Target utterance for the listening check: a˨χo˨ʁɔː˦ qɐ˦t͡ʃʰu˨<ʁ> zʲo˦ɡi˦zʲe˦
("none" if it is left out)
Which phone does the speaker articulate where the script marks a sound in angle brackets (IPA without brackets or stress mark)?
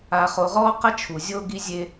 none